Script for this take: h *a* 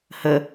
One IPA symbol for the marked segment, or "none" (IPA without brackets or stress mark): ə